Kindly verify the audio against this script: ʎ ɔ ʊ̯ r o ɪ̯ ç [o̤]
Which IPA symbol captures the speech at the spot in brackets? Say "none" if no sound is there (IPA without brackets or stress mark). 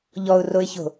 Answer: o̤